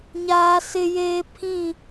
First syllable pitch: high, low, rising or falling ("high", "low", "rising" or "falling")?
high